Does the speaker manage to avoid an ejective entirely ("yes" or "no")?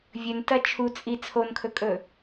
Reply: no